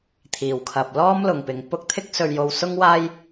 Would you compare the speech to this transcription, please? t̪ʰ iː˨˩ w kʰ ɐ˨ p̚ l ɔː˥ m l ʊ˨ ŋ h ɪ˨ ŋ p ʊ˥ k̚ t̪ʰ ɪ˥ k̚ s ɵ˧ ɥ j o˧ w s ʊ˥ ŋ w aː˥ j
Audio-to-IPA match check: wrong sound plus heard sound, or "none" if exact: h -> p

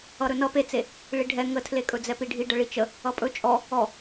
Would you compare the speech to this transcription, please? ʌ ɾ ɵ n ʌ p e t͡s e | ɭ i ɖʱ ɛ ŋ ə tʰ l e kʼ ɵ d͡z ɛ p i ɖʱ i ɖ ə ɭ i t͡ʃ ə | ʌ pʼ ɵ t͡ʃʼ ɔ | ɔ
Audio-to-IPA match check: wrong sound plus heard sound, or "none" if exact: none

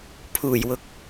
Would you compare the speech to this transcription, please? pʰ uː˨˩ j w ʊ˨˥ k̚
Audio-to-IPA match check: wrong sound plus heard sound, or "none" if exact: none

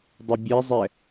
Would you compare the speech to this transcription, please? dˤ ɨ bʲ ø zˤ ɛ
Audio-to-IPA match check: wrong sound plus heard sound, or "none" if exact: ø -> ɛ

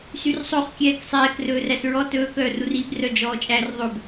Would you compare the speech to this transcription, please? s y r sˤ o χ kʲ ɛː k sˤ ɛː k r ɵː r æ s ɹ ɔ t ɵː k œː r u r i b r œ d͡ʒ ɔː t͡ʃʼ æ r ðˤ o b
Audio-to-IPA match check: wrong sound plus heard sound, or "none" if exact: none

